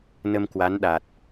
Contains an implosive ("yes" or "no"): yes